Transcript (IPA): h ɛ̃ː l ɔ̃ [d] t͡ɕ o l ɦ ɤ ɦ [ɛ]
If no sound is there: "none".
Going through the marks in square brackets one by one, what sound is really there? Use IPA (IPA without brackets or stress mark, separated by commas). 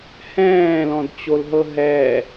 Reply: d, ɛ